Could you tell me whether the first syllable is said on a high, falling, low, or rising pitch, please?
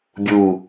falling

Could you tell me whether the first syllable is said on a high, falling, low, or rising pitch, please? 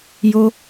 high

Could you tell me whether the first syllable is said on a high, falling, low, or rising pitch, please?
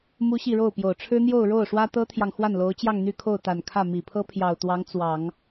high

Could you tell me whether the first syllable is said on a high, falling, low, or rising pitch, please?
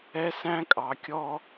high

